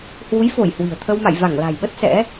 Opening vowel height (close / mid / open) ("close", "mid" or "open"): close